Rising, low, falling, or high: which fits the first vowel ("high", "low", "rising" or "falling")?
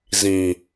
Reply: low